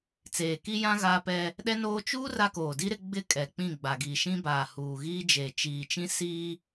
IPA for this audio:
t͡seː˨ki˦jã˦ ɣaː˦pɛ˦ | ɗɛ˦noː˦ t͡ʃuː˦ ra˦koː˨di˦ɾɪ˦ ɡ͡bɪ˦˨ kʼɛ˨k͡pĩ˦˨ɡ͡ba˨ɡi˨ ʃĩ˦baː˨ huː˨ɣiː˦d͡ʒeː˨ t͡ʃiː˨t͡ʃĩ˦ siː˦

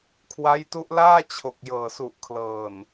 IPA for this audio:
kʰwa˦˥jtu˦˥ʔlaː˥˩ t͡ɕʰo˨˩k̚ jɤː˨˩su˨˩ʔkʰlɤː˨˩n

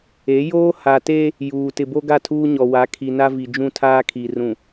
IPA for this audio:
e˨˦ joː˦ha˨te˦ | juː˨ tɪ˨bo˦ ɡa˦˨tʰuː˦ɲɔ˨wa˨˦ kʰi˨ na˦vi˨d͡ʒũ˦˨ tʰaː˦kʰi˨rũ˨

